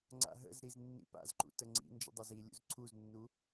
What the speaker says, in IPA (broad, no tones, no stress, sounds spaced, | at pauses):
ŋ͡ǀ a̰ ɦ ə̰ z ɾ i z nː ḭ p a̰ z ǃ ṵ t ə ŋ͡ǀ ḭ n d͡ʒ ə̰ dˤ ɐ z i lʲ ṵ z ǀʰ u z nː u